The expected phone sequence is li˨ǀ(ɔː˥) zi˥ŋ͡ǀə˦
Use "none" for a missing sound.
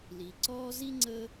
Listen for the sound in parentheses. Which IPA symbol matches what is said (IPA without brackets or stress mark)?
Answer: ɔː˥